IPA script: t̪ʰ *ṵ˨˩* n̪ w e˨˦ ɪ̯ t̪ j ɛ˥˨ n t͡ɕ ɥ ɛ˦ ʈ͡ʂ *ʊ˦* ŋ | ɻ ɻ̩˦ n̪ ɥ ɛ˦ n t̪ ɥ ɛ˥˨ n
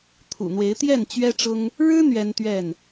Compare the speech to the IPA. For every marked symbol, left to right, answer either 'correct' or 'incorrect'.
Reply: correct, correct

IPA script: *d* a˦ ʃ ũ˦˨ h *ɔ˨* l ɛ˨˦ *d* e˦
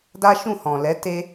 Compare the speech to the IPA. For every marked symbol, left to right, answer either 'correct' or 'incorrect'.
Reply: correct, incorrect: ɔ̃˨, incorrect: t

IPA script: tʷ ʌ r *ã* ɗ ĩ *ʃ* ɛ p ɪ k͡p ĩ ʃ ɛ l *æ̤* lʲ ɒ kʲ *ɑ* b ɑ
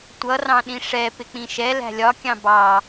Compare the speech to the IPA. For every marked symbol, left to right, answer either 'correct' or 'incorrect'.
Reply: incorrect: ɑ̃, incorrect: ʂ, correct, incorrect: ɑ̃

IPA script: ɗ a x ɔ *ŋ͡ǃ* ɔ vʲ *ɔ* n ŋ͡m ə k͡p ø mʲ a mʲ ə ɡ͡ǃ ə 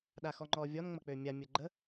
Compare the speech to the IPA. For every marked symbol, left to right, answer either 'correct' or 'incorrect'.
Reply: correct, correct

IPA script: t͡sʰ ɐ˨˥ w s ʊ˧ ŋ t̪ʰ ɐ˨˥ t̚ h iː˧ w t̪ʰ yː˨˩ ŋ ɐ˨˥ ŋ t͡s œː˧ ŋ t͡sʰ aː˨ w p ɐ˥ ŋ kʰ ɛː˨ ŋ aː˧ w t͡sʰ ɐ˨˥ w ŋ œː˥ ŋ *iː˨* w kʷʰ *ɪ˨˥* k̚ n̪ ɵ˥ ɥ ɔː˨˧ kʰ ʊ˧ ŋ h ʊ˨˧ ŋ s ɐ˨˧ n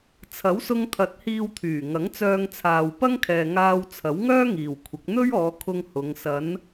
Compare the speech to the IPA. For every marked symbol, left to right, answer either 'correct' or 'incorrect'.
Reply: correct, correct

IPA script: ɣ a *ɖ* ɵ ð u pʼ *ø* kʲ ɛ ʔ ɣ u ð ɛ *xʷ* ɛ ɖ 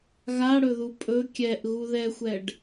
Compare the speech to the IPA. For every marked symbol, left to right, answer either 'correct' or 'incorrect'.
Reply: incorrect: ɽ, incorrect: ɵ, correct

